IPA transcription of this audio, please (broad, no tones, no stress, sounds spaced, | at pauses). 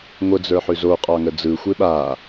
ŋʷ ə d͡z ə˞ ħ ʉ z o qʼ ɑ ŋ ə d͡z ɯ xʷ e ɓ a